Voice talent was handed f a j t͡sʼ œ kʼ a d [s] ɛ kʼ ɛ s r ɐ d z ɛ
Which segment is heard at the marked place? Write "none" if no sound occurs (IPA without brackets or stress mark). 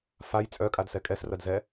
s